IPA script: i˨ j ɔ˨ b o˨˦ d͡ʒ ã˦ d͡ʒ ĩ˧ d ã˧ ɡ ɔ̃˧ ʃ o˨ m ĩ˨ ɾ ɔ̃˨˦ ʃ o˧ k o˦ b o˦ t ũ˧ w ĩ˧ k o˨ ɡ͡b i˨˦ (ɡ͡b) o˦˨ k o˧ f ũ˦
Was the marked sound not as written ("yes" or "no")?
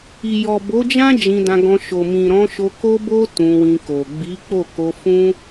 yes